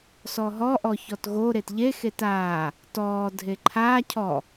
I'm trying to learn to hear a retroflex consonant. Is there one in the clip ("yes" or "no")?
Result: no